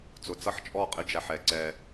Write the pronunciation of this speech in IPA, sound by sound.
t͡s ʊ˨ t͡s ʌ˦ ħ t͡ʃʼ ɔ˦˨ qʼ ɪ˦ d͡ʒ æ˨ ħ ɛ˨ ǀ ɛ˦

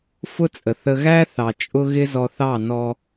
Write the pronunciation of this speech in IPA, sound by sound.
f ʊ˦ t͡sʼ ə˨ θ ə˧ ɣ æ˦ θ ɑ˨ t͡ʃʼ ʊ˧ ɣ ɪ˦ z ɔ˧ θ ɑ˦˨ n ɔ˧

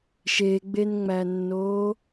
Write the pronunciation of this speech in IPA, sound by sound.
ʃ e ɡ͡b e n ŋ͡m æ nː oː

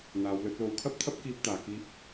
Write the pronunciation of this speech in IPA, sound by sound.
n̪ aː˨˧ w l ɵ˨˥ t̚ l o˧ w kʰ ɐ˥ p̚ t̪ʰ ɐ˥ p̚ k iː˧ p̚ t̪ aː˨ k iː˧ p̚

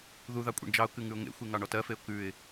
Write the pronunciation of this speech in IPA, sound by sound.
ð u ð ɑ kʷʼ ḛ ɳ d͡ʒ ɑ ʊ̯ k ʉ ŋ ʉ ʊ̯ ŋ ḛ xʷ e ŋ ɑ ɳ ɔ t ɜ f e ʊ̯ k ʉ ɪ̯

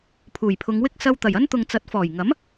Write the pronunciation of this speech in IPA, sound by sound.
pʰ uː˨˩ j pʰ ʊ˨˧ ŋ w ɪ˥ k̚ s ɐ˧ w t̪ ɐ˨˩ j ɐ˥ n t̪ ʊ˨ ŋ t͡s ɐ˨˥ t̚ f ɔː˨˩ j ŋ ɐ˨˥ m

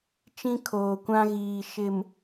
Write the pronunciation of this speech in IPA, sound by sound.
t͡ʃ ĩ˦ kʰ oː˨ kʷ ã˦ ɣ iː˨ ʃ ɪ˨ m

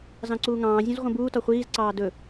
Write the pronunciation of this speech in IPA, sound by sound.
z ɑ̃ ǀ uː ŋ ɑ̃ː zʲ ũ z ʁʷ ə̃ b uː t ɒ χʷ iː z ǀ ɑː d ɵ

